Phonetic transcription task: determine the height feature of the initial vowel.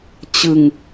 high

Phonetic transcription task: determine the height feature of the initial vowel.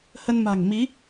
mid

